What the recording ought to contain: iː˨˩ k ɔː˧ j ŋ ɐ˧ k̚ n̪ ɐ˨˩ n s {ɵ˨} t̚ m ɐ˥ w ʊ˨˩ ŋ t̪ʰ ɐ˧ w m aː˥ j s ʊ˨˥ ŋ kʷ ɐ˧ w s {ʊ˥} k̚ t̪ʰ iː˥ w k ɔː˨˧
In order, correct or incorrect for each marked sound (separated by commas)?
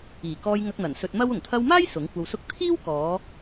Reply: incorrect, correct